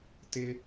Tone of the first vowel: high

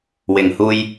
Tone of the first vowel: low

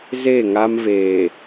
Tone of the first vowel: falling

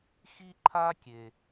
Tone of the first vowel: high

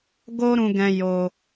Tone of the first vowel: high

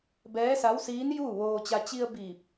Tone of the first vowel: rising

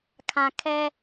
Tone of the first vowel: low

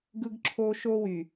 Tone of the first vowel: high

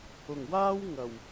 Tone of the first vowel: low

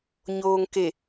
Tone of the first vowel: low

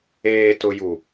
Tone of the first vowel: low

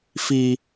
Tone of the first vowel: high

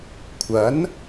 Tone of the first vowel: rising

